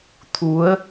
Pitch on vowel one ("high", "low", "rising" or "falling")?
rising